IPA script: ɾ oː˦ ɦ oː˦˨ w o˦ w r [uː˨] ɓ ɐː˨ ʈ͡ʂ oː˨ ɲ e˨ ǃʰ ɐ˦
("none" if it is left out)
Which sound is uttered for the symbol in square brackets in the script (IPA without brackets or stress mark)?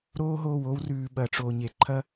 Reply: ʉː˨